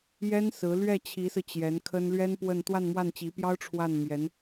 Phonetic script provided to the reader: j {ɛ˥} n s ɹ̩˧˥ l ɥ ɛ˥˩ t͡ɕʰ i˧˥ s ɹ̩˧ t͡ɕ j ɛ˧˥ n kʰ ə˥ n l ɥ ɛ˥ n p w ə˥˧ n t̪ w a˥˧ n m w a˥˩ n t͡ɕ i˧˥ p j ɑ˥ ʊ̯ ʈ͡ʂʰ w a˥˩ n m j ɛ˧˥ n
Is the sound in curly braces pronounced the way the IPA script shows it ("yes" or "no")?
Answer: yes